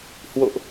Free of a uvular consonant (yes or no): yes